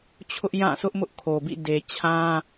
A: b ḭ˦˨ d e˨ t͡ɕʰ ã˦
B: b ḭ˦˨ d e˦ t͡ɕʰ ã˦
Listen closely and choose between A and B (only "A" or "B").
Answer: A